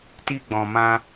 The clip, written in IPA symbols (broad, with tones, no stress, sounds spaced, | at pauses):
t i˧ ɡ͡b ɔ̃˨ m ã˧